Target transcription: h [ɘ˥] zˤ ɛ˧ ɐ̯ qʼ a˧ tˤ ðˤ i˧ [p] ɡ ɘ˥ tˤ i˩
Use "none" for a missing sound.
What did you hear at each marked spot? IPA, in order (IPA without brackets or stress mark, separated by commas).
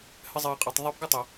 ɘ˥, p